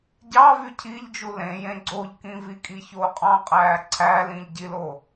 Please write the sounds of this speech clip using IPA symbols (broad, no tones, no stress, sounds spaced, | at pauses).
ɟ ɑ v y cʰ i ʎ d͡ʒ u l ẽ j ẽ ɡ͡ǀ o ʎ k ĩ v i kʼ i ç oː qʼ ɑ̃ qʼ æː ǀʰ æ l ĩ ʎ ɟ i l o